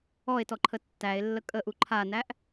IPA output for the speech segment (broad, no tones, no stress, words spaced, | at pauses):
ɔe̯tɔǃʰə tːæe̯lːə kʼəʔu ǃʰanæʔ